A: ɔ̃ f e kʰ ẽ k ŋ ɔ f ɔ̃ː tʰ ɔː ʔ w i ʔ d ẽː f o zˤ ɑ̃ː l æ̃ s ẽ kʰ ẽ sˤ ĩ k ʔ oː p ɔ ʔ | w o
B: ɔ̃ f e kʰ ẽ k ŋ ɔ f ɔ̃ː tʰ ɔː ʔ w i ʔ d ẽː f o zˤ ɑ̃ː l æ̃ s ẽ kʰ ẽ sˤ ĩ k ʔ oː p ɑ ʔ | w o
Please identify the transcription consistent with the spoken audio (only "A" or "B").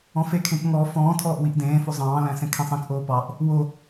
B